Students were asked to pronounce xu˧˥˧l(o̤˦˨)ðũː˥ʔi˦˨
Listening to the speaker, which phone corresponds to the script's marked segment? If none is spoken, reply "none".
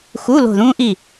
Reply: o̤˦˨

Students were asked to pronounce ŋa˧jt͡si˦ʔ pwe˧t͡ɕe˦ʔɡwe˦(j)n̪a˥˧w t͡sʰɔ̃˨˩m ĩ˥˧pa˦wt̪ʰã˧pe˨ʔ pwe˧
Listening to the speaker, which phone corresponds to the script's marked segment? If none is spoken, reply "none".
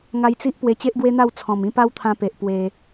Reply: none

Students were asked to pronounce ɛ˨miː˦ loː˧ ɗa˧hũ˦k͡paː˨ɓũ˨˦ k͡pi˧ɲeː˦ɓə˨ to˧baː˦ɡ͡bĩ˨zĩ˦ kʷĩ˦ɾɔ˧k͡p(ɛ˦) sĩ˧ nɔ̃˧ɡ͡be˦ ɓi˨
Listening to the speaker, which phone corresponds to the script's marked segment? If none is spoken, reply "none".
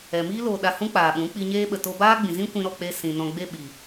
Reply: e˦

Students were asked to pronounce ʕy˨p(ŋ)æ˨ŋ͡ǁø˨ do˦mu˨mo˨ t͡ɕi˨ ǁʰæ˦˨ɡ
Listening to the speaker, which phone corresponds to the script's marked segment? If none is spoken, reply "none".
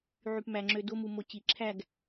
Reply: m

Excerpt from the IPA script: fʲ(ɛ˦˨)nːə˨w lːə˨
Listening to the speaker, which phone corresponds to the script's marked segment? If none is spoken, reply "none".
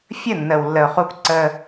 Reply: ə˦˨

